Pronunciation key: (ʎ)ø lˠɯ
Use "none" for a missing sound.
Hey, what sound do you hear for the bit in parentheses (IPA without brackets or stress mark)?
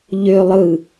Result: ʎ